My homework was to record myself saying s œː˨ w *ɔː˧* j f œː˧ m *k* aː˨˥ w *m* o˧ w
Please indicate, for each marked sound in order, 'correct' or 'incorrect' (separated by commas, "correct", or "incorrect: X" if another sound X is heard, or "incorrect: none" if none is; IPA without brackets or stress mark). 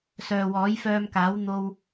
incorrect: ɔː˨˥, correct, incorrect: n̪